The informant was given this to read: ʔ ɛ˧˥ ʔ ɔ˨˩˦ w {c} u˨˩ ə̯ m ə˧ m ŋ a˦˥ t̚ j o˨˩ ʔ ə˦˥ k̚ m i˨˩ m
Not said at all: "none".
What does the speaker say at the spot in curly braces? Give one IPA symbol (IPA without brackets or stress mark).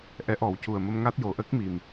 c